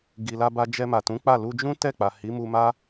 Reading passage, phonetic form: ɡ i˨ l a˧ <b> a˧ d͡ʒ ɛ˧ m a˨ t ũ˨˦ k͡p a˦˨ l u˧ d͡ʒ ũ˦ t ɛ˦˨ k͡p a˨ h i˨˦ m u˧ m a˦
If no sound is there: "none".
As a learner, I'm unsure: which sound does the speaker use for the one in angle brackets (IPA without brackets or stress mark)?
b